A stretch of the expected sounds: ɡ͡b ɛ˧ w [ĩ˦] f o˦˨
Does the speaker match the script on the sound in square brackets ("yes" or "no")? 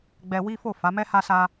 no